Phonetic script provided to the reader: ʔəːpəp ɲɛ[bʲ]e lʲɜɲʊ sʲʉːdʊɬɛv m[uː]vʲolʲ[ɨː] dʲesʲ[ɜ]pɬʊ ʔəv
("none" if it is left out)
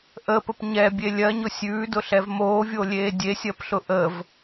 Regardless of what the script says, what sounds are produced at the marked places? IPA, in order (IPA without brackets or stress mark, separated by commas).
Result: bʲ, oː, eː, ɜ